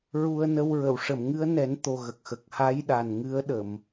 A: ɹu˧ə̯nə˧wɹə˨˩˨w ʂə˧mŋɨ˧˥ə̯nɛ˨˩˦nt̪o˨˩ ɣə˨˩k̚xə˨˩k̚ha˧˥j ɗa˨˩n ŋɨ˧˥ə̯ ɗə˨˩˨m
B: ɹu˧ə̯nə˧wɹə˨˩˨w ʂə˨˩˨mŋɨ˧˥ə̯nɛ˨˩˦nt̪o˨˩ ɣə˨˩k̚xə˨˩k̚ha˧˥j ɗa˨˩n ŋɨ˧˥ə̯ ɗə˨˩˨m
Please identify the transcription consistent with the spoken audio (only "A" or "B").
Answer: B